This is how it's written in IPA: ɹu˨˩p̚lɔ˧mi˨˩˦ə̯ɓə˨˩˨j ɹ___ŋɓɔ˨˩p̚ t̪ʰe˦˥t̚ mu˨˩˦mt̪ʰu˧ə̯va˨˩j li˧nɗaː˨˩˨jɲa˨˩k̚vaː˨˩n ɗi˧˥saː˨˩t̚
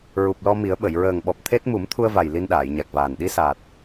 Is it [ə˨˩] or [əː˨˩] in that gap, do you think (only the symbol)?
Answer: əː˨˩